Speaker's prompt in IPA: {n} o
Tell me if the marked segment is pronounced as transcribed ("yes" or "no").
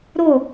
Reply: no